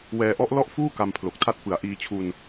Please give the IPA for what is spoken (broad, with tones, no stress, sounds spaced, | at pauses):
w ɛː˧ ʔ ɔ˦˥ ʔ l ɔ˥˩ ʔ f uː˥˩ k a˧ m pʰ l o˨˩ k̚ tʰ a˦˥ t̚ p ɯ˨˩ a̯ ʔ iː˧ t͡ɕʰ u˧ n